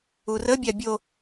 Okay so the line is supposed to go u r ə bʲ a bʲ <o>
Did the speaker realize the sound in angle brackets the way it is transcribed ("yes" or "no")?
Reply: yes